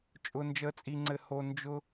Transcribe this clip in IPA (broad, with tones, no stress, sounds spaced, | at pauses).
t͡ʃʼ ʊ˦ n d͡ʒ əː˥ t͡sʼ i˦ ŋ͡ǀ ɘ˦ h oː˦ n d͡ʒ ʊ˥